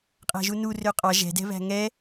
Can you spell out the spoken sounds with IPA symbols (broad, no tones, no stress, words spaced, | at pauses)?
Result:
qʼæ̤ʒunu røqʼɑ ʒɛ̤dɛ̤βæ̤ ŋɛ